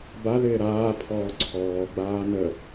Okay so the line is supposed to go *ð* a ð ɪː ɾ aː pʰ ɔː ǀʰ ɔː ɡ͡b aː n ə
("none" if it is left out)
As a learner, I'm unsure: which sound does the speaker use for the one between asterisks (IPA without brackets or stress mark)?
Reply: b